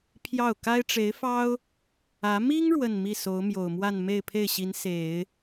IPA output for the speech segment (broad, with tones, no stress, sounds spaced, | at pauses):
pʰ j ɑ˥˩ ʊ̯ k a˥ ɪ̯ ʈ͡ʂ e˧˥ ɪ̯ f ɑ˥ ʊ̯ | ä˧˥ m i˥ ŋ ɻ w ə˥˧ n m i˥˩ s o˧˥ ʊ̯ m j o˨˩ ʊ̯ m w a˥˧ n m e˥˧ ɪ̯ pʰ e˥˩ ɪ̯ ɕ i˧˥ n s e˨˩˦ ɪ̯